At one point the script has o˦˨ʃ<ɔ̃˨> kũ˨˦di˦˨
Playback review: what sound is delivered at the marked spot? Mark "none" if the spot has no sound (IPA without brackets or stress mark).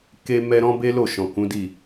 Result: ɔ̃˨